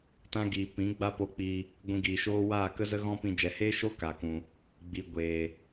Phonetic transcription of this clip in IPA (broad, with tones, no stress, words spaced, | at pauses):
tã˦ɡiː˨ pĩ˨˦ ɡ͡ba˦po˧ k͡pi˧ | ɡʷĩ˧ɡiː˨ʃoː˦ waː˦˨kə˦zə˦ ɣɔ̃˦pĩ˧ d͡ʒɛ˨heː˦ʃo˦ ka˨kũ˨ | ɡ͡bi˨ ɡʷeː˨